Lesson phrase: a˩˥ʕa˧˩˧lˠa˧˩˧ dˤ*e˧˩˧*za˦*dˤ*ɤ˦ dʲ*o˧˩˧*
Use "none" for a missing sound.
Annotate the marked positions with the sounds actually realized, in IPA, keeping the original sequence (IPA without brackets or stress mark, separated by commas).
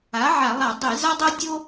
e˧˩˧, dˤ, o˦